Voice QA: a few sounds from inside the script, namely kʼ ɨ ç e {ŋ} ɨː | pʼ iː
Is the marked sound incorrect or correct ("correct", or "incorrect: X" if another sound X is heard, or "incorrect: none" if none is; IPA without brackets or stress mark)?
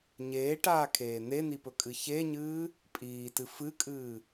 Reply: incorrect: ɲ